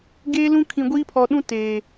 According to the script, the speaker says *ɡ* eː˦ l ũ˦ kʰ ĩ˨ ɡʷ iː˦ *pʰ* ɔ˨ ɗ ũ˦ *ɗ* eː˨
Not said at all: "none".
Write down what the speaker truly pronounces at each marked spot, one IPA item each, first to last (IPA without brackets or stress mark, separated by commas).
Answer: ɡ, pʰ, t